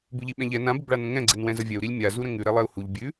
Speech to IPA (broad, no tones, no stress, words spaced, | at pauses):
bʉʎiɓɛ̃ʎɛ nã bəbɭanə̃ŋɛ̃ ɡ͡ǀɛnwɛ̃zəvʲɛu̯ ɾilʲmʲa zuɾə̃ŋʉ ɾɛlˠɛu̯huʎ bʲʉ